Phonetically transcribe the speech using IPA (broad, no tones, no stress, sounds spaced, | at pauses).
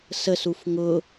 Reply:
s ə s u f ŋ ʊ